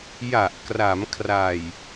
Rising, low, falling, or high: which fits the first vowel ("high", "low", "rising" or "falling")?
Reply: low